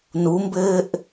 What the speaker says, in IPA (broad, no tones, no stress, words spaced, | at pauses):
numbɘːʔ